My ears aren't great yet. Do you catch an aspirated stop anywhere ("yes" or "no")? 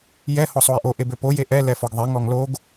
no